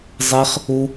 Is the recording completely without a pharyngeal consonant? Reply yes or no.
yes